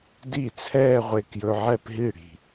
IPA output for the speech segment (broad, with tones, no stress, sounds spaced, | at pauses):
d i˥˩ t͡sʰ ɛː˥˧ ʁʷ e˧ k j ɵ˧ ʕ ɛ˥˧ p ɦ i˥˩ ɽ i̤˩